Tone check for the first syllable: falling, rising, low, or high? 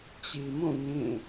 low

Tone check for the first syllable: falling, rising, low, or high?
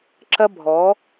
high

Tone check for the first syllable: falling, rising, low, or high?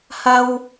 high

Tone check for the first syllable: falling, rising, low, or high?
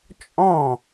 falling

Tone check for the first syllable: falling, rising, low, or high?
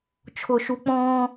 low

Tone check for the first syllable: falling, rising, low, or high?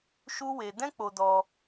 high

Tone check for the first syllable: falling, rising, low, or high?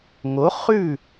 rising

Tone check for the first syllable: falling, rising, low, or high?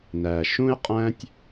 low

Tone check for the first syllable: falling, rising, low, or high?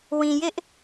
low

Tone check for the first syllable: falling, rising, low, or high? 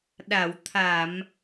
low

